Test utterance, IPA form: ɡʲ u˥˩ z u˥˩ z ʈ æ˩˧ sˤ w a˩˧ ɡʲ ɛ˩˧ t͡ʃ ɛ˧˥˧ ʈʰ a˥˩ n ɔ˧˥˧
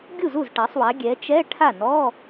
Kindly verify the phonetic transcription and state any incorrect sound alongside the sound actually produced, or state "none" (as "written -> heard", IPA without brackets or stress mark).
æ˩˧ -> a˩˧